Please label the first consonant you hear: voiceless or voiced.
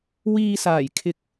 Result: voiced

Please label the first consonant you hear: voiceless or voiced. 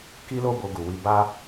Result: voiceless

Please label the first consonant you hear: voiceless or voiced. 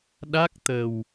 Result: voiced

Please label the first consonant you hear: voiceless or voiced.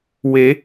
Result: voiced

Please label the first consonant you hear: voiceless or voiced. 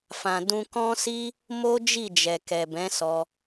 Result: voiceless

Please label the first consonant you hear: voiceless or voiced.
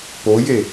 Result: voiceless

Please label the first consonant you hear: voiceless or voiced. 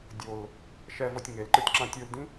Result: voiced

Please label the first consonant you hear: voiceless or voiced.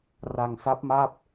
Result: voiced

